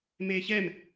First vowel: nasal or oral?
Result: oral